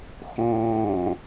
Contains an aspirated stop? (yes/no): no